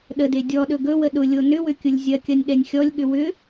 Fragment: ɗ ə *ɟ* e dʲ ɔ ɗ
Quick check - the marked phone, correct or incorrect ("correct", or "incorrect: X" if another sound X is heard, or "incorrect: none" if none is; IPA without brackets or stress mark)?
incorrect: d